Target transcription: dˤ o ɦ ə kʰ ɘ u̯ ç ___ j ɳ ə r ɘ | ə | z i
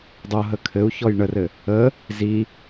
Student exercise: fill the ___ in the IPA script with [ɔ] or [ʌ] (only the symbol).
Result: ɔ